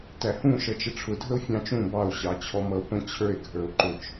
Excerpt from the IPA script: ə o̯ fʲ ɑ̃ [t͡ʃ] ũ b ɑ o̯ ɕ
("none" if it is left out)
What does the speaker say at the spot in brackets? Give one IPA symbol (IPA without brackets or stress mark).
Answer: t͡ʃ